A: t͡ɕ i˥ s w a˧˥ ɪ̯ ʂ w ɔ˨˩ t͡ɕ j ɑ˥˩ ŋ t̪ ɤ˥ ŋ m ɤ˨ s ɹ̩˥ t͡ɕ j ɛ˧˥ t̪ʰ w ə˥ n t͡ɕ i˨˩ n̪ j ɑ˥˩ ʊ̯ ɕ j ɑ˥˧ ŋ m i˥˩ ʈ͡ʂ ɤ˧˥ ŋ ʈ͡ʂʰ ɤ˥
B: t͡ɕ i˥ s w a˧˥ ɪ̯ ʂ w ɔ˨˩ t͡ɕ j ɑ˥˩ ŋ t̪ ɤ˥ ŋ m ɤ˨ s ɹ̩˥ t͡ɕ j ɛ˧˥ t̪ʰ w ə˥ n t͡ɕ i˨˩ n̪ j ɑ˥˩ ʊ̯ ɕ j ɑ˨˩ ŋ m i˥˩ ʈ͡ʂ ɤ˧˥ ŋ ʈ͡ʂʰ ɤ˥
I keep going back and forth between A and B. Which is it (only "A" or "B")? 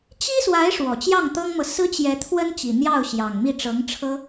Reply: B